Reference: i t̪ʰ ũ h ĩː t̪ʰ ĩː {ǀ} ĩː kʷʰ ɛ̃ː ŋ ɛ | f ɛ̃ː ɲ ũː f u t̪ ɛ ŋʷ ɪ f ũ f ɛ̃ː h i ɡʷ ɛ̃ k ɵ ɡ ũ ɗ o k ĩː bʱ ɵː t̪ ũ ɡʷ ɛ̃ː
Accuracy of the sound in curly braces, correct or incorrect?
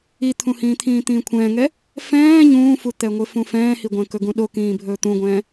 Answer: incorrect